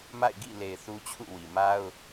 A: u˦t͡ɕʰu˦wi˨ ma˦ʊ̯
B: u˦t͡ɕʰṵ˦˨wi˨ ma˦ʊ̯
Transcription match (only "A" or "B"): B